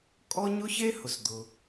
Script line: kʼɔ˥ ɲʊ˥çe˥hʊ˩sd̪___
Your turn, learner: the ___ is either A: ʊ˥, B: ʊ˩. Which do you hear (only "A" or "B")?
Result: B